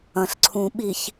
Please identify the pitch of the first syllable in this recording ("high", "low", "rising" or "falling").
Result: low